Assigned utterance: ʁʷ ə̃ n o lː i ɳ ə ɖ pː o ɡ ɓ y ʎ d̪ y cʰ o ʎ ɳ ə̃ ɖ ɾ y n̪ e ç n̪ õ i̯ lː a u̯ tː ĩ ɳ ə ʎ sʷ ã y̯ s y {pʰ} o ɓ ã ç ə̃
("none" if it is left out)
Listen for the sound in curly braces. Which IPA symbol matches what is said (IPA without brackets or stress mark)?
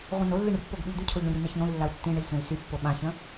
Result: pː